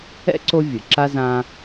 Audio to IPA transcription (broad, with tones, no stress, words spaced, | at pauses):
ɛ̰˥ǀo˦ vʲɯ˩ǁa˥zã˦